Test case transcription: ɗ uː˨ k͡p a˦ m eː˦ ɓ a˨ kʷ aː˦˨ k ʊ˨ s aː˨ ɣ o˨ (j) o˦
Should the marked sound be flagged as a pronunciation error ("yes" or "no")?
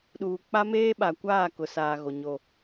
yes